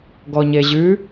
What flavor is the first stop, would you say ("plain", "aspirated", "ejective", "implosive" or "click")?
plain